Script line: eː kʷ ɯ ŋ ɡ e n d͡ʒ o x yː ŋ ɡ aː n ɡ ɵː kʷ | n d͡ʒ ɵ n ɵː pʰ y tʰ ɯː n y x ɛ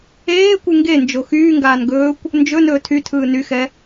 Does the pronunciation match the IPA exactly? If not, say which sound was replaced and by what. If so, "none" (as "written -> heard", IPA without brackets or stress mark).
pʰ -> tʰ